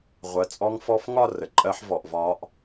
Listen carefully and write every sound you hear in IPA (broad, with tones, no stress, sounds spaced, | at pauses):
ʁʷ ɜ˨˥ t͡sʼ ɔ˦˥ ŋ f ɔ˦˥ f ŋ ɒ˥˧ r ə˩˧ ǃʼ ɜ˦˥ ħ v ɔ˧˩˧ ʔ v ɒː˦˥ ʔ